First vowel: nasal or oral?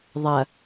oral